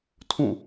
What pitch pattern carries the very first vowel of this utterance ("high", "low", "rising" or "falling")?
falling